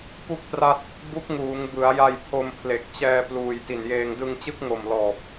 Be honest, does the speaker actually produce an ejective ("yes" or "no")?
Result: no